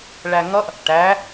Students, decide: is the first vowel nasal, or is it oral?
oral